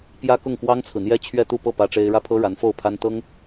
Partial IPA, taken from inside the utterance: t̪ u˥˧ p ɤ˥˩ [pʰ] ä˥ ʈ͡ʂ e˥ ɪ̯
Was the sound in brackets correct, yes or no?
no